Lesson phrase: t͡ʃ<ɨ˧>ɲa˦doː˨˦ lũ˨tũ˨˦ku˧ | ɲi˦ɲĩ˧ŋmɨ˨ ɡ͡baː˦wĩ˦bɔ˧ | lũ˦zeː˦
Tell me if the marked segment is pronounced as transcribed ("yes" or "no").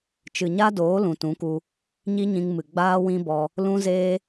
no